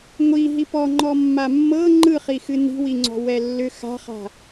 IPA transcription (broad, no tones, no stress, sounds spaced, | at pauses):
ŋʷ i ɦ i p ɔ ŋ͡ǃ ɔ mː a mː ɤ ŋ͡ǃ ɯ χ i x ɨ n i̤ w i ŋ͡ǀ ɔ̤ w ɛ lː ʏ x a̤ χ a̤